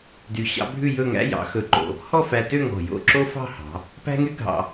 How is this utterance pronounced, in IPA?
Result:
dy˧˩ɕɑ̰˥bʱʉ˥˧ jɵ˥˧ŋæ̰˥ jɑ̰˩˧xɵ˧˩ǃo̰˧˩ | hɔ˥˧fæ˧tø˥˧ ŋɔ̤˧˩jo̰˥˧ ǁo˥fɑ̤˥˧hɑ̤˩˧ | pæ̤˥ŋy˥ ɡʱɑ̰˧

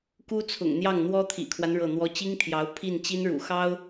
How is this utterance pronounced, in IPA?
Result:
ku˥t͡sʰʊ̰˨˩ŋn̪jɑ˥˩ŋ n̪wɔ˥t̪ʰḭ˨˩kʰwa˦n ɻɤ˥˩n̪wɔ˥ t͡ɕi˥ŋt̪ʰjɑ˧˥ʊ̯ pʰi˥˩nt͡ɕi˥nɻṵ˨˩ xɑ˥ʊ̯

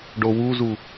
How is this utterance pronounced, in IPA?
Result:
ɖowuzu

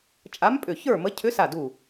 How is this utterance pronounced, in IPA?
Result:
t͡ʃʼa˧˥mpʼʏ˧˩çə˞˥˨mə˧˥ cʰʏ˧˥sa˧˩ du˧˩

